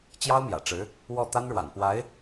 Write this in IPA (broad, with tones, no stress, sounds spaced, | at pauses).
t͡ɕ j ɑ˥ ʊ̯ m j ä̰˨˩ ʈ͡ʂ ɻ̩˧˥ | w ɔ˥˩ t̪ a˥ n ɻ w a̰˨˩ n p w a˧˥ ɪ̯